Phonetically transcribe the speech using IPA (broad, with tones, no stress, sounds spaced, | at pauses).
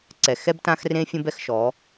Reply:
ǀ ɛ˨ x ɛ˦ b t ã˦ x r ẽ˦ fʲ ə̃˦ b ɛ˦ x ʃ ɔ˨˦